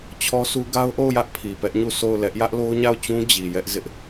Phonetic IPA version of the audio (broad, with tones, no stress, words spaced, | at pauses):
t͡ɕʰɔ˦su˦ ɡa˦ʊ̯ʔo˦˨ʊ̯jä˦ʔ pʰi˨pɛ˦ʔɲu˦˨ so˦˨ʊ̯lɛ˦ʔ jä˦ʔlo˦ʊ̯ɲa˦˨ʊ̯t͡ɕũ˦ d͡ʑi˨jɛ˦ʔ zɪ˦ʔ